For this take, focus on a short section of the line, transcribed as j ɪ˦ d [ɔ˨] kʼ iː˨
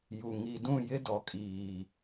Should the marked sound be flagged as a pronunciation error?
no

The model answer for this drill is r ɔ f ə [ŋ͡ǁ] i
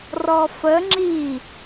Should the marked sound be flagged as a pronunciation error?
no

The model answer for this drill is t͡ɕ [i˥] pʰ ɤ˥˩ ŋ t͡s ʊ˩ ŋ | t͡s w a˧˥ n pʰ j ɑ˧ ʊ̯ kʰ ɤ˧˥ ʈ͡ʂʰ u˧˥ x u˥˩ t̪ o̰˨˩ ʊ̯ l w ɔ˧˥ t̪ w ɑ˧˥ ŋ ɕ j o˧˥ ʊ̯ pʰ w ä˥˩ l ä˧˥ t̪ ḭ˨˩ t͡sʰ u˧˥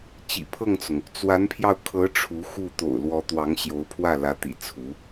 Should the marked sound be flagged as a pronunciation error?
yes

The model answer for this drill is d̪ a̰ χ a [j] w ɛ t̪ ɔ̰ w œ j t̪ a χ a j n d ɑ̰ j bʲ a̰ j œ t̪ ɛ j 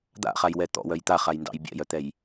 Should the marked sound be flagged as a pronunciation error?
no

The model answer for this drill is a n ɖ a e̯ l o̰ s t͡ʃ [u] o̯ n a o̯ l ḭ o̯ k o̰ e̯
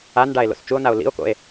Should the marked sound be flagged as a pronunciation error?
no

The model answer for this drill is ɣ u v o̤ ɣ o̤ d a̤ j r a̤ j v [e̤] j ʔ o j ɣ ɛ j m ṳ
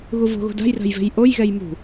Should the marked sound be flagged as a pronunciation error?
no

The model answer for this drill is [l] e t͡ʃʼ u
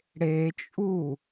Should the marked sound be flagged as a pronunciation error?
yes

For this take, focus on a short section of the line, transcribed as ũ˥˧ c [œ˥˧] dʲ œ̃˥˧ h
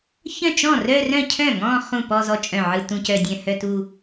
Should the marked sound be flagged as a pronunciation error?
no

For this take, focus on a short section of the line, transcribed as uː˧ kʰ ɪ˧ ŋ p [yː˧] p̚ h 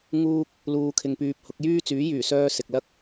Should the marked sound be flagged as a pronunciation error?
no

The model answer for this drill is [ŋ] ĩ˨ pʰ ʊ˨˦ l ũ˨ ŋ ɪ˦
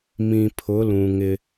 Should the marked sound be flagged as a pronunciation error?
yes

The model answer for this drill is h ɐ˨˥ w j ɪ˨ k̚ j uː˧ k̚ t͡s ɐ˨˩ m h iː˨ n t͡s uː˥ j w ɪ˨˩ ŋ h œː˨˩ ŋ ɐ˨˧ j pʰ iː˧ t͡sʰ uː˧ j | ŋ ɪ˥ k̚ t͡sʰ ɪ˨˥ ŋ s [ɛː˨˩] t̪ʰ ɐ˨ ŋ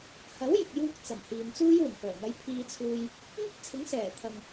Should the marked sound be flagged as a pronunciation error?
no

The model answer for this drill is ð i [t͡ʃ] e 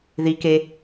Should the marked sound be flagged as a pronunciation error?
yes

